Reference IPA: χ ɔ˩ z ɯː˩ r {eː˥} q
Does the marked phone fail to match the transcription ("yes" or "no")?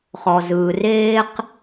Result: no